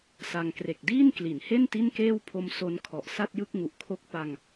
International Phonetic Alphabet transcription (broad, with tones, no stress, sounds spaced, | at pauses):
s a˧ ŋ k r e˨˩ k̚ d iː˥˩ n k l i˩˦ n h e˥˩ n t i˥˩ n k eː˥˩ w pʰ o˧ m s o˦˥ n kʰ ɔ˨˩ ʔ s a˥˩ t̚ j ɯ˥˩ k̚ ŋ u˨˩ ʔ kʰ o˦˥ k̚ p a˧ ŋ